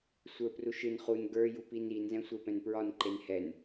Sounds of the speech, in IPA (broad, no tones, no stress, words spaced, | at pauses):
sʷə˞pruʃɨn χun ɡə˞ jupinin zɛ̃sʷepɛ̃npɹɒn ǃenhɛn